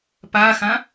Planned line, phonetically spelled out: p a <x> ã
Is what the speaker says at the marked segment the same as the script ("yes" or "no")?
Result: yes